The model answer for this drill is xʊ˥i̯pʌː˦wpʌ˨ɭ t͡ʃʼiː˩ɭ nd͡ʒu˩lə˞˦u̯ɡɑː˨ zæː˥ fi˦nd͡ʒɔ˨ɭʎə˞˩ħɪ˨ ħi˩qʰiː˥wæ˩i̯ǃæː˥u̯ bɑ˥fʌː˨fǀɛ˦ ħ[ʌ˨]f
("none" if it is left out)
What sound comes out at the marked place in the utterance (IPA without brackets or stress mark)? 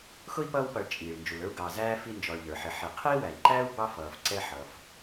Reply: ʌ˨